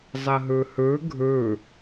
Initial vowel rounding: unrounded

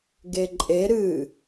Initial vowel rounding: unrounded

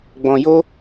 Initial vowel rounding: rounded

